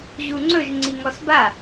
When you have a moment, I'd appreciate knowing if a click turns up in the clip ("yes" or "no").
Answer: yes